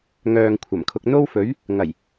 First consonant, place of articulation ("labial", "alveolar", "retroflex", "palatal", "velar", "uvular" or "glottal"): velar